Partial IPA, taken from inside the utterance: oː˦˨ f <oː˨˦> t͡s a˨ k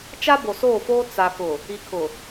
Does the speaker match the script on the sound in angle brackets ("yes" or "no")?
no